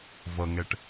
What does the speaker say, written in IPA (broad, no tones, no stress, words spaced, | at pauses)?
vʌŋɛʈ